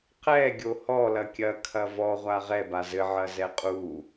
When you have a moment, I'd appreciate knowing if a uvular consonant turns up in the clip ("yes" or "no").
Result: yes